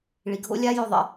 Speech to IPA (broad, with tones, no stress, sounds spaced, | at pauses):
ɭ i˨ ɡʱ o̰˦ lʲ a˦ j ɵ˦˨ ðˤ ə̰˦